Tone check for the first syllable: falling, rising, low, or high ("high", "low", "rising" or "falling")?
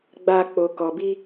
high